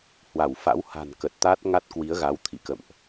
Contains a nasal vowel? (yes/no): no